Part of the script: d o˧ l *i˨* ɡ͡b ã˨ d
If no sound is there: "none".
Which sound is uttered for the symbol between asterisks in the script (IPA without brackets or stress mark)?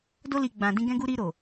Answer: i˨